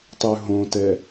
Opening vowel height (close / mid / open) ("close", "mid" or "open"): close